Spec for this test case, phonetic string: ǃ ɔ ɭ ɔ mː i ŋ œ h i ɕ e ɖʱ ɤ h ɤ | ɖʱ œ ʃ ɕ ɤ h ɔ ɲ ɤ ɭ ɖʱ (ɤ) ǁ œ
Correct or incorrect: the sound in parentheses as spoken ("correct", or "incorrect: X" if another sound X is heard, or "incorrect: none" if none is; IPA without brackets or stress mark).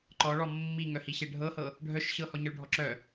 incorrect: ɔ